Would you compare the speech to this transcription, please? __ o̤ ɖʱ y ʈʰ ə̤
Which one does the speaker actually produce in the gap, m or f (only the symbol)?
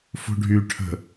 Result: f